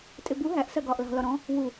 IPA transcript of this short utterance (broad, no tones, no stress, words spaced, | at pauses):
tʼɪbu ɦæʔ sɜɡɒːʔlɑ̤ lɒɾɔ̃ | wu